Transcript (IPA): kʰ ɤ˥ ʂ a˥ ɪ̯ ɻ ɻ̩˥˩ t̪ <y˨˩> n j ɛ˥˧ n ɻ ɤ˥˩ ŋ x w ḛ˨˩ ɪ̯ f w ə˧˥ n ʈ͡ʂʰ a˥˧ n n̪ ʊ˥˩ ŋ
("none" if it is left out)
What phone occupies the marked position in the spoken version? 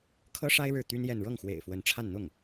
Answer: y˥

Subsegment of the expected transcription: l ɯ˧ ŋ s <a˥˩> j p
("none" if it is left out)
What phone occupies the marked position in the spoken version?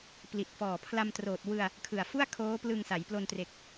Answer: a˩˦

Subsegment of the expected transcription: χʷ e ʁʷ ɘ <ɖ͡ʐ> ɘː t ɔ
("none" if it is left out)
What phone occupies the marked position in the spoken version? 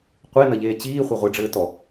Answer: ɖ͡ʐ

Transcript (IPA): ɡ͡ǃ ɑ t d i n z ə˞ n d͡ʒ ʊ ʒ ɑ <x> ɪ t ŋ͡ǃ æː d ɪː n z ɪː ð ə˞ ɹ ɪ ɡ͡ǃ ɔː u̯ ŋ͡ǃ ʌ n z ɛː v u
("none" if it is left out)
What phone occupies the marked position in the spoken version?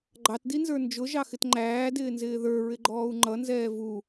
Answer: x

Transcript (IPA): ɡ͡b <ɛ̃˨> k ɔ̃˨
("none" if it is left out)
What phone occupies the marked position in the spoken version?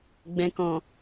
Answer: ɛ̃˨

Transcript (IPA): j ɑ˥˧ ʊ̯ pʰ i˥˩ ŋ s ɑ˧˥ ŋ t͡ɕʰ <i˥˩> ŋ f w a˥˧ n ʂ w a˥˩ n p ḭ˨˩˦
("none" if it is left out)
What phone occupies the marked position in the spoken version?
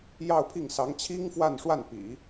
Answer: i˥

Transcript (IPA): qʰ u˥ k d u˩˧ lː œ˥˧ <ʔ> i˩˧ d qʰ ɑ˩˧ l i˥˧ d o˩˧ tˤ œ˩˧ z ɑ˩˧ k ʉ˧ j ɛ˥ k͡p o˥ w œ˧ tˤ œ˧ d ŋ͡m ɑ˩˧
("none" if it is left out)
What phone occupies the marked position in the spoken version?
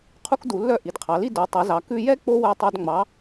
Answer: ʔ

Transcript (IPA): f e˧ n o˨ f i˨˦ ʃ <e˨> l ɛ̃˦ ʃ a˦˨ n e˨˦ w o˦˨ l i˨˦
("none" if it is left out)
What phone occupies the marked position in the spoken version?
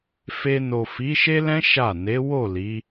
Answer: e˦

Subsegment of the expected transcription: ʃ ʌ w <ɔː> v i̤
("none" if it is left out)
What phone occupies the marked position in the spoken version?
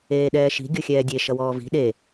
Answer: ɔː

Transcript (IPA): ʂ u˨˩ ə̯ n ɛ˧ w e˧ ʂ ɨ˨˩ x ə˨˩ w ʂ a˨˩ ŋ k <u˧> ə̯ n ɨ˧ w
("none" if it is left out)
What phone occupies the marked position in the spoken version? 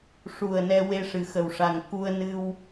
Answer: u˧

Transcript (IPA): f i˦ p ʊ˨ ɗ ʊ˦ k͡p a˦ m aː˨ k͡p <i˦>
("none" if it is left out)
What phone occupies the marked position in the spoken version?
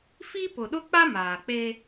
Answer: e˦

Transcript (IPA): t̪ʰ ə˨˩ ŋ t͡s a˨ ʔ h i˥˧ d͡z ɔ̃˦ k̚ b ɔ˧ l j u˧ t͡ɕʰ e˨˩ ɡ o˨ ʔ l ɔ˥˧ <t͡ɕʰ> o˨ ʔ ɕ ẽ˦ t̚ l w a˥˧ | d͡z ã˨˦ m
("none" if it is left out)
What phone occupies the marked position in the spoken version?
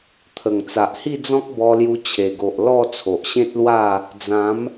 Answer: t͡sʰ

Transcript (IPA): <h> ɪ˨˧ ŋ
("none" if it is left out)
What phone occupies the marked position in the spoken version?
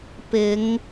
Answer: p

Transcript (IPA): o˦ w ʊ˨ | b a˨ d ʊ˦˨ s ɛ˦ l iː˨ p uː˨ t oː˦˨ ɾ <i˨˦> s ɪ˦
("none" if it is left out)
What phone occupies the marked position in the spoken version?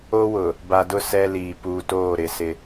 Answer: ɪ˨˦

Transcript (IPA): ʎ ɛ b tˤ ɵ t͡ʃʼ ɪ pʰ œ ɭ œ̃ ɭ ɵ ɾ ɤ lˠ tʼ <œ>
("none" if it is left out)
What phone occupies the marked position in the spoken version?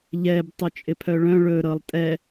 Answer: ɛ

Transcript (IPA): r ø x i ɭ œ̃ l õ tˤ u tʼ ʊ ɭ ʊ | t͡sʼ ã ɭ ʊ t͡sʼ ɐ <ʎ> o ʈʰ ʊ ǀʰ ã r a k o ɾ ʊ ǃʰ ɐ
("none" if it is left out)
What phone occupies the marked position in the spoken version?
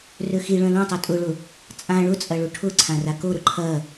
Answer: ɭ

